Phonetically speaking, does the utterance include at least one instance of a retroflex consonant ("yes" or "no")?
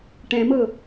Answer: yes